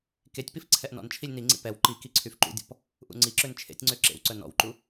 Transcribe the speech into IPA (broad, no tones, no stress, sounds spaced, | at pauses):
k e tʲ p i f ǀʰ ɛ ʔ n ɔ̰ n t͡ʃʰ i lʲ n i ŋ͡ǀ ḭ p ɛ w ǃ i k i ǀʰ y f ǃ ṵ dʲ ɔ̰ p | ʔ ṵ ŋ͡ǀ i ǁ ø n t͡ʃʰ ḛ tʲ ŋ͡ǀ ø ǁ ḛ w ǀ œ n ɔ̰ w ǃ u